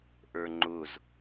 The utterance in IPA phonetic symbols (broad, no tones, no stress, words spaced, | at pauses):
ʔə˞ŋ͡ǃʊz